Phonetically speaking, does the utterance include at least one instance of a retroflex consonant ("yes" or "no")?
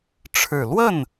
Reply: yes